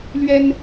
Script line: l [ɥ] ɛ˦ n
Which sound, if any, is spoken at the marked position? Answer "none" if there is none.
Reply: ɥ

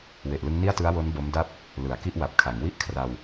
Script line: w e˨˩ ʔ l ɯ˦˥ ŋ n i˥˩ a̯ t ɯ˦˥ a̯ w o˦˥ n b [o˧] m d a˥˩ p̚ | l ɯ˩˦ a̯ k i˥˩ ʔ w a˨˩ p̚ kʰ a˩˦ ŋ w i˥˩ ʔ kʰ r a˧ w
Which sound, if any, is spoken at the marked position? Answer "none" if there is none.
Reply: o˦˥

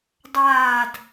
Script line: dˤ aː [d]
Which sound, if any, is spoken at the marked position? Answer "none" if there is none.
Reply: d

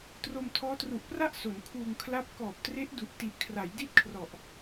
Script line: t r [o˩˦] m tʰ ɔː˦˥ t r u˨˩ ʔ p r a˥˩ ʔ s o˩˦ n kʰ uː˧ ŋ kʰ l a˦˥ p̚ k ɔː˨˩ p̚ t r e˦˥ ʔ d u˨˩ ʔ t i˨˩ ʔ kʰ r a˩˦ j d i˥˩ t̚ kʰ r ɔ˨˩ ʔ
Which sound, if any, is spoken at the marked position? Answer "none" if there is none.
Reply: o˧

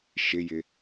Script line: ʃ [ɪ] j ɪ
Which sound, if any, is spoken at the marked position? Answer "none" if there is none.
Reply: ɪ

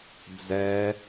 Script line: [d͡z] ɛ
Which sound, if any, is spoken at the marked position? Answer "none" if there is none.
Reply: d͡z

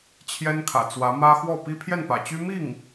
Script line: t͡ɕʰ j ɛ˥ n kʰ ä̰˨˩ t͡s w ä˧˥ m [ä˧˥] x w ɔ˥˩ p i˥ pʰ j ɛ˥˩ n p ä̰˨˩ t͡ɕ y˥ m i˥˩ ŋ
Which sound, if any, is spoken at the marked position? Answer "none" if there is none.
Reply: ä˥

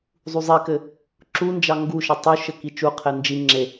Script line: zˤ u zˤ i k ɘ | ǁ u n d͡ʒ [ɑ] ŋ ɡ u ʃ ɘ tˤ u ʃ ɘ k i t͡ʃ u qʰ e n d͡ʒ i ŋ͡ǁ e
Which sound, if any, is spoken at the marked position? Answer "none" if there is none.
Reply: ɑ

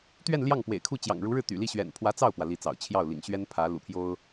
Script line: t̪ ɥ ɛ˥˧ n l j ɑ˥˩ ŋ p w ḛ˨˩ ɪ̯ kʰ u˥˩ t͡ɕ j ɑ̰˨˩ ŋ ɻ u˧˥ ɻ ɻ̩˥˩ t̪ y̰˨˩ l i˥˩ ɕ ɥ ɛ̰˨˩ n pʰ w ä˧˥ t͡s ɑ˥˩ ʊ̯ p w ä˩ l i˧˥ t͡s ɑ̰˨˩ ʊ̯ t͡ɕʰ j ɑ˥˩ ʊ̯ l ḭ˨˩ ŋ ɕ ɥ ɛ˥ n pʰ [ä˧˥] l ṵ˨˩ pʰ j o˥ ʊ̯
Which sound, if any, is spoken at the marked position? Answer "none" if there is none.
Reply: ä˧˥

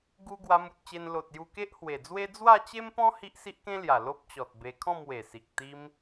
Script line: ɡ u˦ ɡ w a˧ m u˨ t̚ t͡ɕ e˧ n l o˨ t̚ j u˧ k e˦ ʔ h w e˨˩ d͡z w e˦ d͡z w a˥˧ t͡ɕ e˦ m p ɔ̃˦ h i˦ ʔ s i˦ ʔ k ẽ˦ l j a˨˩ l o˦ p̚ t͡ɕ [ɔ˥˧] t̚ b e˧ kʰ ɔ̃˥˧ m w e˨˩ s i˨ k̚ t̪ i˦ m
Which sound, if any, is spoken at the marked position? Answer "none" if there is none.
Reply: ɔ˨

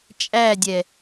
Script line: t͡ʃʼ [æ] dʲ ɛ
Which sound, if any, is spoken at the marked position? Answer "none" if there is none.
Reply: æ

